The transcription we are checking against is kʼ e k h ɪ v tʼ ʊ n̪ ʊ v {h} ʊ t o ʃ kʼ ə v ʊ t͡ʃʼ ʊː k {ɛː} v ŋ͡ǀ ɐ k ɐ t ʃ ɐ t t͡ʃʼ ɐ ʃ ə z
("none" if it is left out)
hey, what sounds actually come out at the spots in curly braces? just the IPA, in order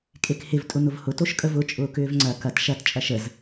h, ʏː

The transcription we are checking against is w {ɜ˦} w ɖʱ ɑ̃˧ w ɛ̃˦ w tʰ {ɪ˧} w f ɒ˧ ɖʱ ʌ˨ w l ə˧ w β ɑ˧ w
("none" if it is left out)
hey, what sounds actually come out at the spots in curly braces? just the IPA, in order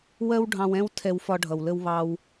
ɜ˦, ɛ˧

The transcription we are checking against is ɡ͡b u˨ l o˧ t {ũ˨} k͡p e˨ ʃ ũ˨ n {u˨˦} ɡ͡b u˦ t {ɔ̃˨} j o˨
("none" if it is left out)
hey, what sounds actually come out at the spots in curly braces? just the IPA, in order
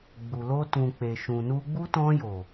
ũ˨, u˧, ɔ̃˧

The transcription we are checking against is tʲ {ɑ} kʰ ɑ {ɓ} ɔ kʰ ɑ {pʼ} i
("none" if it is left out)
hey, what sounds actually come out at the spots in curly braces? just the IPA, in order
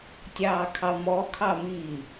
ɑː, m, m

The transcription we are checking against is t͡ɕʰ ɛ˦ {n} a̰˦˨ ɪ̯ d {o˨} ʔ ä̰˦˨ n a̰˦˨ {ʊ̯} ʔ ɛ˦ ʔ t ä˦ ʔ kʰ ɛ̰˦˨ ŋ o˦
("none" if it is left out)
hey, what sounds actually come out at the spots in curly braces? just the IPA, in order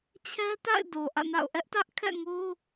t, o˨, ʊ̯

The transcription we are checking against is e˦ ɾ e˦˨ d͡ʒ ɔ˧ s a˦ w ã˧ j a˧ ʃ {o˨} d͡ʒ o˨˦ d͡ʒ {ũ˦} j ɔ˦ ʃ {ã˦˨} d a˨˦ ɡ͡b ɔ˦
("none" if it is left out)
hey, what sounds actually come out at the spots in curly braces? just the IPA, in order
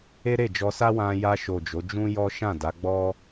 o˨, ũ˦, ã˦˨

